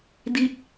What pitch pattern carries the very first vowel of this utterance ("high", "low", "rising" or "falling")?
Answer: falling